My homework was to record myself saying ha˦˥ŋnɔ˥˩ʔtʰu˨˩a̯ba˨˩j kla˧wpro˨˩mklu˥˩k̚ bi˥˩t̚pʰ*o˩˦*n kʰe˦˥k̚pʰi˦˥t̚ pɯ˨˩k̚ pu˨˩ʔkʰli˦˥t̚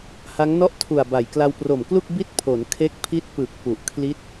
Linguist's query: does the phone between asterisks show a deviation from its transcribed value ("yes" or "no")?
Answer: no